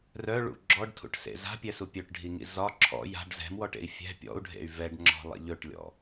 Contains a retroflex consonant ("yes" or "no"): yes